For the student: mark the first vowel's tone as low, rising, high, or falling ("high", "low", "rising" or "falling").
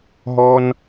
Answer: high